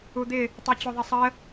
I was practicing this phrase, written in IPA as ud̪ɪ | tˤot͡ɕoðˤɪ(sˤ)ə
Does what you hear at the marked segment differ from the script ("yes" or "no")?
no